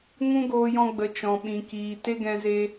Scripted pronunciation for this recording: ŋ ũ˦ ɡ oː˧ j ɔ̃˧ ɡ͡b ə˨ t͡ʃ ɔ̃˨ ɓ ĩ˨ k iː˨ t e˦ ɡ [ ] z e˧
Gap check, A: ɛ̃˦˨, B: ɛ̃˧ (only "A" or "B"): B